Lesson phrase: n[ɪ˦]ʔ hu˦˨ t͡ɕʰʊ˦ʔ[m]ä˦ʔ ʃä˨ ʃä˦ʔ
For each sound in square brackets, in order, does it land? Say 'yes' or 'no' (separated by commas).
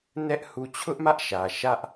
no, yes